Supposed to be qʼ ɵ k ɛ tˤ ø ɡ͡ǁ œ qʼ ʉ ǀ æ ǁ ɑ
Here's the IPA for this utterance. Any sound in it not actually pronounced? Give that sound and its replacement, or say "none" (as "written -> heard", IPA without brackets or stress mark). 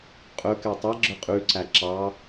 ø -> ɛ